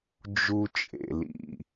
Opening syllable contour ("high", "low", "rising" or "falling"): high